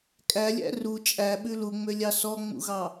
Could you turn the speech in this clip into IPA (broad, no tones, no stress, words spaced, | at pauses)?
kʼælʲæ̰ ru t͡ʃʼæɓʉ luŋ͡mølʲɑ sɔŋ͡mṵɣɑ